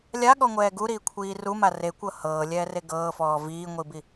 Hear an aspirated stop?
yes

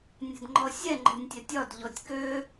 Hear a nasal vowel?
no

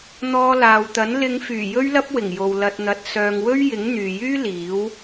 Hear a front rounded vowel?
yes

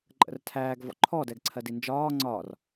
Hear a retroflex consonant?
no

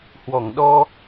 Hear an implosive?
yes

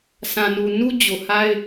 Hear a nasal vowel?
yes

